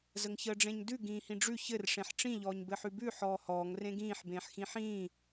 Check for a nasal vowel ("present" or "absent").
present